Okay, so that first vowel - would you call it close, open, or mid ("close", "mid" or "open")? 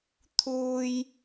close